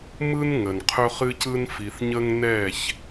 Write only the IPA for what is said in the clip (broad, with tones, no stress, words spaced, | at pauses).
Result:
mɯ˦n ŋə˨nqʰɵ˦χɨ˦cɯ˦n fi˨θɲə˦ŋ nɛ˦˨ç